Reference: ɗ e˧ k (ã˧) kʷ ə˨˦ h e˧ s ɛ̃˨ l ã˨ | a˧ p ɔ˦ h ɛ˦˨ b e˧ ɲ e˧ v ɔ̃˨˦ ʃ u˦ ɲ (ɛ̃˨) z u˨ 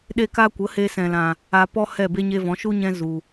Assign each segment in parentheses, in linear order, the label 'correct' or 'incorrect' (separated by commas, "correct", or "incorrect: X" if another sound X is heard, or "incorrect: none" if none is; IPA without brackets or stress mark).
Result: incorrect: a˧, incorrect: ɛ̃˧